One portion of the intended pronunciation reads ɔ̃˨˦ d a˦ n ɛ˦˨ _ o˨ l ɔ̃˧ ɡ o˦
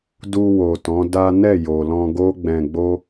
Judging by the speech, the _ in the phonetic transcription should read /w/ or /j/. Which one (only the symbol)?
j